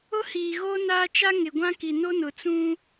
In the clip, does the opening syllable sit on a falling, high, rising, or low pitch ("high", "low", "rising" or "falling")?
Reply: high